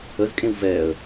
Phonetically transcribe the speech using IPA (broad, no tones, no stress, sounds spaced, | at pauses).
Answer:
ə z kʼ ẽ w v ɛ ə̯